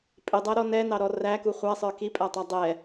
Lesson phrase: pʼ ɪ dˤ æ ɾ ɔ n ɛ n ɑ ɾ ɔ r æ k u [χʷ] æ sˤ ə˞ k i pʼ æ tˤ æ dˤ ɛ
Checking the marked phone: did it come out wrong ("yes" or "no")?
no